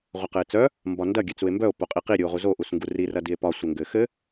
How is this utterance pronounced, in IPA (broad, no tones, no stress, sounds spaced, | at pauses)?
ʁʷ ɐ q ɘ e̯ t͡s œ | m b ɒ n d ɐ ɡʲ ɘ t͡s u e̯ m b œ o̯ p o qʼ i q i ɾʲ u o̯ ʁ u z o ʔ u s ŋ ɡ u r i r ɐ d i e̯ p ɒ sʷ ɘ ŋ ɡ ɘ x ɘ